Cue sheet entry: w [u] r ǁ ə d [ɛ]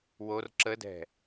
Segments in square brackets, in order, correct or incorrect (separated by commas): incorrect, incorrect